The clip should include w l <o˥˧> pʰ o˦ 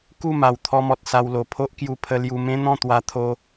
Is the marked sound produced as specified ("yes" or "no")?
no